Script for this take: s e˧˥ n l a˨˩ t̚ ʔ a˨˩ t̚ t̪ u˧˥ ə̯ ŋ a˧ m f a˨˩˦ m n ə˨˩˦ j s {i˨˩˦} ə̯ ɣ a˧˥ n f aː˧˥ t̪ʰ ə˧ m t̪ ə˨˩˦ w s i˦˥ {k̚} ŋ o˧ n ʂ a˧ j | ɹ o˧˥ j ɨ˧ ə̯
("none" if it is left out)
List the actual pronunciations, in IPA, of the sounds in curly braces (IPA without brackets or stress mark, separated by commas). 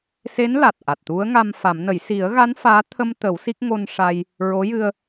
i˨˩˦, k̚